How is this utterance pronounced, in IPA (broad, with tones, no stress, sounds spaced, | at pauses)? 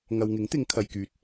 ŋ ɐ˨ w ŋ ɪ˨˥ ŋ t̪ ɪ˨˧ ŋ kʰ ɐ˨ j k yː˨ t̚